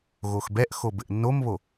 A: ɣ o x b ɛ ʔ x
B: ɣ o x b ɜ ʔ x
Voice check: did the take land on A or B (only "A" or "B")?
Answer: A